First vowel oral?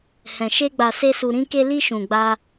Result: no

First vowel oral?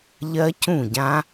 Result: yes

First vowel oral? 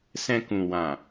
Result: no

